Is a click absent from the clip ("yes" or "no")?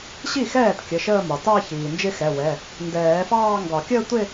yes